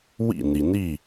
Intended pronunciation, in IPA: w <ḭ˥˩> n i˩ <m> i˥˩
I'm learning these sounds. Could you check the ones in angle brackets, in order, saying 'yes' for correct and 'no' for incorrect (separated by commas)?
yes, no